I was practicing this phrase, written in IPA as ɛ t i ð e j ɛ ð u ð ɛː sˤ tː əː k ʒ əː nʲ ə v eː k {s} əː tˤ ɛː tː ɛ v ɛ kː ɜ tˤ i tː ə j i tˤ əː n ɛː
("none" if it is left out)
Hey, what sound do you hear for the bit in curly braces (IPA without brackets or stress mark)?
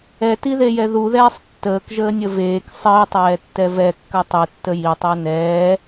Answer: sˤ